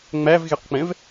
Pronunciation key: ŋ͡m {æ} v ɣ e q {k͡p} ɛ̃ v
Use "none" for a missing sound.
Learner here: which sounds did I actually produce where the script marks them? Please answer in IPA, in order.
æ, k͡p

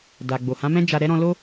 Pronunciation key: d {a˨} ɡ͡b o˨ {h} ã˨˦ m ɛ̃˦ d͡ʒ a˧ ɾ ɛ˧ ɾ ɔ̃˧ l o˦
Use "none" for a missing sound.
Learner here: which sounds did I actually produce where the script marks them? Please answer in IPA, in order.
a˨, h

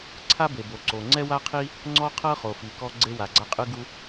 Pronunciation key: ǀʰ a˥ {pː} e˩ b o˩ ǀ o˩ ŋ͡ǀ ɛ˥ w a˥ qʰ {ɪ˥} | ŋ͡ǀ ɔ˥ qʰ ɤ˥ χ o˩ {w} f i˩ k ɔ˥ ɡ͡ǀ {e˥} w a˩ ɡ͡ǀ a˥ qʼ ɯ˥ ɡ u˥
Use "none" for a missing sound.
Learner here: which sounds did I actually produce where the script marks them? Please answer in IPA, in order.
b, i˥, none, e˥

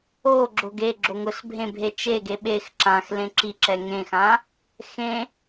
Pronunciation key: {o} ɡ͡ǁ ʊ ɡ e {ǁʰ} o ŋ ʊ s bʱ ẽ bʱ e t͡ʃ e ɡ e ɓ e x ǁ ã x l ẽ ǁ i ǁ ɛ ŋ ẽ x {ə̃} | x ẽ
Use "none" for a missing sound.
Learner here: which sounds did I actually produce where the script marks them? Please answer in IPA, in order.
o, ɡ͡ǁ, ã

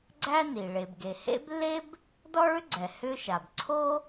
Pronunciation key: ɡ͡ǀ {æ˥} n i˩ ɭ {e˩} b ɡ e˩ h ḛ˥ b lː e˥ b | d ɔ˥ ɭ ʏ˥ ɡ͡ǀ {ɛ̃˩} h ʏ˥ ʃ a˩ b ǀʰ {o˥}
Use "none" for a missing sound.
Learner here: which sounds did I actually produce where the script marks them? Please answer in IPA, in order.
æ˥, e˩, ɛ˩, o˥

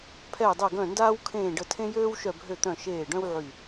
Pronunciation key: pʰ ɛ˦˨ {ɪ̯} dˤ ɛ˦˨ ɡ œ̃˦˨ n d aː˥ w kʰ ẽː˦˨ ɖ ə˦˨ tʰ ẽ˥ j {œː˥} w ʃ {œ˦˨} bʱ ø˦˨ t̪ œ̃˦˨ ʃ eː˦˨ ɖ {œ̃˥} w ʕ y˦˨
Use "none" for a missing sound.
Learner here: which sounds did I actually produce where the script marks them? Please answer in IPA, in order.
ɪ̯, øː˥, œ˦˨, œ̃˥

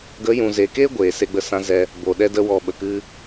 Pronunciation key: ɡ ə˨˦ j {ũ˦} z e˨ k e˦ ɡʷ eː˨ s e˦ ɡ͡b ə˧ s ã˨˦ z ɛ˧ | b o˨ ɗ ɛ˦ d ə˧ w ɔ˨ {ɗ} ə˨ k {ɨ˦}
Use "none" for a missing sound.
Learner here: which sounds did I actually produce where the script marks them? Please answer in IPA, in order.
ũ˨, ɓ, ɨ˦

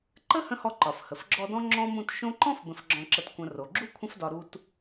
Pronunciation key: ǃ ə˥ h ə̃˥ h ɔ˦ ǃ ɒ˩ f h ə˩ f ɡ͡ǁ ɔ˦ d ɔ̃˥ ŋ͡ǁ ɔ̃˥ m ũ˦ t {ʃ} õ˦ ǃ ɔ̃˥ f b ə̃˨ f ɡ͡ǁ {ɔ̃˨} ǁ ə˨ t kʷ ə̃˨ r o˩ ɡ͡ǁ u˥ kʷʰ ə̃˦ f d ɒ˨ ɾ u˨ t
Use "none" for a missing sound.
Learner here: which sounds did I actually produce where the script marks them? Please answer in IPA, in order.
ʃ, ɔ̃˨

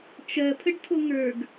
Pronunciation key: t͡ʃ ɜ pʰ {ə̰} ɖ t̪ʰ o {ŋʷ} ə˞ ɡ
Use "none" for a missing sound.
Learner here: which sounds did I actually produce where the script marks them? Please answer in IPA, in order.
ə, ŋ

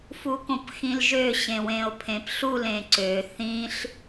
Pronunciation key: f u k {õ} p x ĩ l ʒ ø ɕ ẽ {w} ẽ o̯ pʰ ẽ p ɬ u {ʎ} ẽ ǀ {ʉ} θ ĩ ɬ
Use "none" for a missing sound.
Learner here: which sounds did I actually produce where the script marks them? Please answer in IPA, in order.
õ, w, l, ø

